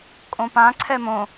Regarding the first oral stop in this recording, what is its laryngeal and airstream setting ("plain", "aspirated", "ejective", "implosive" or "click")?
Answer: ejective